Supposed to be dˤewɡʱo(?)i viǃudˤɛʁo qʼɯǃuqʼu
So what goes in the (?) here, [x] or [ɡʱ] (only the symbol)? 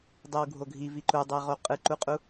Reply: ɡʱ